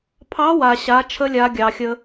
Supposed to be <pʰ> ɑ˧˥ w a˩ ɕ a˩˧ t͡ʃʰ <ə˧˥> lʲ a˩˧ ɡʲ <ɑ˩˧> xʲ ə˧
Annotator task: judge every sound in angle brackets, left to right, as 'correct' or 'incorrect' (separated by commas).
correct, correct, incorrect